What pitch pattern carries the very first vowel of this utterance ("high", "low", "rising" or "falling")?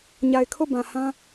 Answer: low